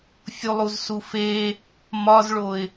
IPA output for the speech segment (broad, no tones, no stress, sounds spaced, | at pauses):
fʲ u lˠ u z s u f e | m ɒ z ɭ o ɪ̯